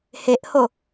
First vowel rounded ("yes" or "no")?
no